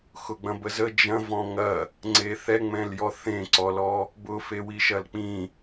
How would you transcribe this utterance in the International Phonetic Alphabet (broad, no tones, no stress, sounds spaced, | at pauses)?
x ʊ ɡ͡b ɐ̃ b ə z ə d͡ʒ ɐ̃ v ɔ̃ ŋ ɐ | ŋ͡ǀ e θ ɛ ŋ͡m ɛ̃ l j ɔ θ ẽ ǀ ɔ l ɔ | b ʊ f e w i ʃ ɐ l k͡p ĩ